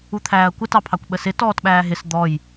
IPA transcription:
u t̪ʰ æː ɐ̯ kʷ ə t ɑ pʰ ɑ kʷ ɓ ə s ɪ t ɔː t ɓ æː ɦ ɪ s d̪ ɔ j

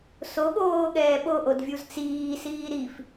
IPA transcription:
s o ɠ oː ɠ ɛː ɓ o ʔ o d vʲ u z t͡s iː s iː ɾ i f

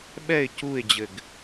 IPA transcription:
ɓ ɛ ɪ̯ c u ɪ̯ d͡ʑ ɘ ɡ

